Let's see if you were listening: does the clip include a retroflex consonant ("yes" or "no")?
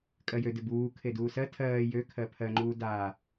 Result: no